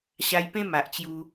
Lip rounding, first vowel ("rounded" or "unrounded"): unrounded